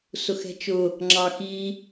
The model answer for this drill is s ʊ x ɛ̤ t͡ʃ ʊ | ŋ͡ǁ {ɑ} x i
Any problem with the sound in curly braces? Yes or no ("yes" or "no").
no